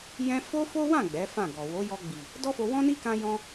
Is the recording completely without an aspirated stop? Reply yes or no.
yes